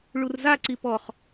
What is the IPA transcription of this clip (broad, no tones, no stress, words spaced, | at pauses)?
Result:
ɭurzaǀi pɔχ